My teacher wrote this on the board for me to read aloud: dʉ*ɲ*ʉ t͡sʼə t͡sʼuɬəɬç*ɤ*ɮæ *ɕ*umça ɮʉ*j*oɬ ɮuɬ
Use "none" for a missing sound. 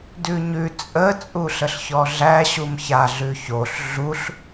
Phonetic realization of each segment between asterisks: ɲ, ɔ, ɕ, ç

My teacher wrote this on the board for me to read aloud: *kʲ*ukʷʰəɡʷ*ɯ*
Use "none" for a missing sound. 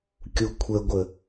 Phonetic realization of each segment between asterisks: kʲ, ə

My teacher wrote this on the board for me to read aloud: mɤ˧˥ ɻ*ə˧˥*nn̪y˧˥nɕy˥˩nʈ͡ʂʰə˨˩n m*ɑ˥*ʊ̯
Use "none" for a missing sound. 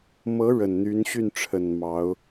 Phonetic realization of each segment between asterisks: ə˨˩, ɑ˧˥

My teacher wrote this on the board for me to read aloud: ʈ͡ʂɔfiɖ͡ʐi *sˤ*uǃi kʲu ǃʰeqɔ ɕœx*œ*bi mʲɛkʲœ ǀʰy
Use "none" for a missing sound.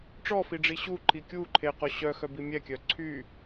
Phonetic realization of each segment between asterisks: ɕ, œ

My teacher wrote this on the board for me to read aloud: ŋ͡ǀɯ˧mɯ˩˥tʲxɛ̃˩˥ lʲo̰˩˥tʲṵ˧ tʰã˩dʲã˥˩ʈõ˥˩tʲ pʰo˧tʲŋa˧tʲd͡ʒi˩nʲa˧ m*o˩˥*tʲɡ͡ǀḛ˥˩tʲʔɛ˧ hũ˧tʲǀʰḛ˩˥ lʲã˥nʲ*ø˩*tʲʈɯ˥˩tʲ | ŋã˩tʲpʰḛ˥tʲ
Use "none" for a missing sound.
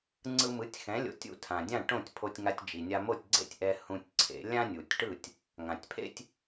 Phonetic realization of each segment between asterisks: o˥˩, u˩

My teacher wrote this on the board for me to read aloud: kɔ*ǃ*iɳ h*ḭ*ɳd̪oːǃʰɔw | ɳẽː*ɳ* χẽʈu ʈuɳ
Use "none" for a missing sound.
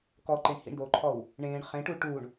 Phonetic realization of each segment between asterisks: ǃ, ḭ, ɳ

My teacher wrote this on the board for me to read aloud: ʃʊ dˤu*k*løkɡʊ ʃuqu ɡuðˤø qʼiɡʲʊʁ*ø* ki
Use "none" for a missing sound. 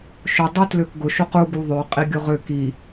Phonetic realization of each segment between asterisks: t, ø

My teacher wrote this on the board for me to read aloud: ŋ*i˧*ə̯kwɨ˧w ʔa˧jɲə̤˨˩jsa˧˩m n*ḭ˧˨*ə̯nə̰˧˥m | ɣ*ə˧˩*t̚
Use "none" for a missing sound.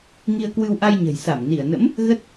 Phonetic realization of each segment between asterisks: i˧, i˧˩, ə˦˥

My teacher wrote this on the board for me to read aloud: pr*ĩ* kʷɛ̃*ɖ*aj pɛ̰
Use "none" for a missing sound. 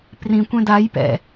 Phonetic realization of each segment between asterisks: ĩ, d

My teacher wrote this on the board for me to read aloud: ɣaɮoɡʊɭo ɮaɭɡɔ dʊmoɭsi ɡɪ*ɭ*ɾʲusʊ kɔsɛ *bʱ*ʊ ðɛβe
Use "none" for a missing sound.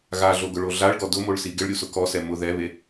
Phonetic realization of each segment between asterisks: ɭ, m

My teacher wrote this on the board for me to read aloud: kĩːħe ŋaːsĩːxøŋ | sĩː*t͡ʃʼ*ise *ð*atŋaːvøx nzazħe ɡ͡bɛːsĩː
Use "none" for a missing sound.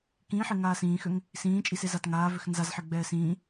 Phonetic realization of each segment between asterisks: t͡ʃʼ, z

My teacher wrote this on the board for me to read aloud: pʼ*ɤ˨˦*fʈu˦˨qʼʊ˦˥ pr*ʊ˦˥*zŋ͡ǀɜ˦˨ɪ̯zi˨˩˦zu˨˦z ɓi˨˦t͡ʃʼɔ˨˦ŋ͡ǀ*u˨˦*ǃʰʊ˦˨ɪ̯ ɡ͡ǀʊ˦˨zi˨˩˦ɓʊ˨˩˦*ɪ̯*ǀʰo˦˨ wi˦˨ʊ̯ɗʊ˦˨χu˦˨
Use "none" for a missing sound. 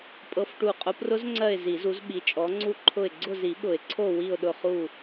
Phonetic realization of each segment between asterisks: ɤ˦˥, ʊ˦˥, u˦˨, ɪ̯

